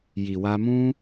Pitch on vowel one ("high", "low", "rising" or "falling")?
low